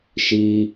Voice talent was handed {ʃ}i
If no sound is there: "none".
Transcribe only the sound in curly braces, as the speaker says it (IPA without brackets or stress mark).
ʃ